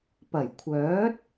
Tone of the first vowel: low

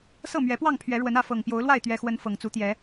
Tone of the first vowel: falling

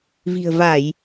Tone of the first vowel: low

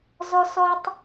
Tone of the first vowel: high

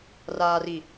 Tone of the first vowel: low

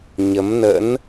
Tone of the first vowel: rising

